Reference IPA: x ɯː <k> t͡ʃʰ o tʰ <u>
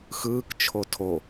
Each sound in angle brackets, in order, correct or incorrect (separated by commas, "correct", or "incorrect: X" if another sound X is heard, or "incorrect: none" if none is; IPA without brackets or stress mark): correct, incorrect: o